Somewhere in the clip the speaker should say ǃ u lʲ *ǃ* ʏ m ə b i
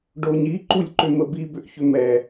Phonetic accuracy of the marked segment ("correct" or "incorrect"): correct